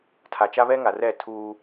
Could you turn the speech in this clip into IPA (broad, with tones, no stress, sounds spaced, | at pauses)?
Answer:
tʰ a˨ t͡ʃ a˦ β ɛ˦ ŋ a˨ r ɛ˦˨ tʰ uː˦